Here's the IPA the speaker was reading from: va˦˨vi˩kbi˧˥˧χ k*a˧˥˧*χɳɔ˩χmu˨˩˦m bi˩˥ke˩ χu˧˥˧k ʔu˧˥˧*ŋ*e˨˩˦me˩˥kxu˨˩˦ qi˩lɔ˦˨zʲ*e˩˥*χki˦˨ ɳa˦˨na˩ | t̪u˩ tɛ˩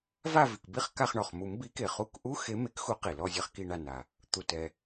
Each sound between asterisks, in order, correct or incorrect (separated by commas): incorrect, incorrect, incorrect